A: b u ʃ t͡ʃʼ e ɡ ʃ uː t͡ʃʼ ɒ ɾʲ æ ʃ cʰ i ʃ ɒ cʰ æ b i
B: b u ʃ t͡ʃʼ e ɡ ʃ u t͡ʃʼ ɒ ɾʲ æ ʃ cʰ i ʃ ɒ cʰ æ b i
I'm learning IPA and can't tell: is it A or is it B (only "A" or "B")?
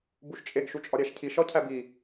B